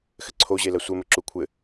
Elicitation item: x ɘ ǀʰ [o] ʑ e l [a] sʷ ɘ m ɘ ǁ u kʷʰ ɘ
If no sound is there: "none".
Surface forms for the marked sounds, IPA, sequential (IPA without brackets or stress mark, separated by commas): o, ɐ